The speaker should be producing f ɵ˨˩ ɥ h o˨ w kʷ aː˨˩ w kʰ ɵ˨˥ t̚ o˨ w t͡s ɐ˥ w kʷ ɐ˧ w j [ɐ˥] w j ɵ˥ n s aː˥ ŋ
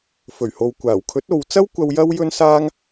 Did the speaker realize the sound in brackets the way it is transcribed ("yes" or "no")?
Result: yes